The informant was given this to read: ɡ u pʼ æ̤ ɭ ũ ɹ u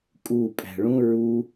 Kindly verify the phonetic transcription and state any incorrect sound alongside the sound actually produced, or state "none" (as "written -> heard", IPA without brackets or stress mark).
ɡ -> kʼ